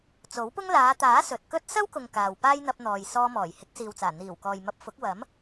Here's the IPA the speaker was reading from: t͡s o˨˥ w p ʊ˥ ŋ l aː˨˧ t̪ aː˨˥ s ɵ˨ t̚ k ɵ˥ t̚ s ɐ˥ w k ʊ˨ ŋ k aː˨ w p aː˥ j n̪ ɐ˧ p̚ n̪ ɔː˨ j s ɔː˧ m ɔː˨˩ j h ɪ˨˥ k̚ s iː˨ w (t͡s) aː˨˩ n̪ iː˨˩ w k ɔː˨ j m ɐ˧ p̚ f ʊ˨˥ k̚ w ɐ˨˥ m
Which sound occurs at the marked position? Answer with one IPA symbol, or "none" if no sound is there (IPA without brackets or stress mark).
t͡s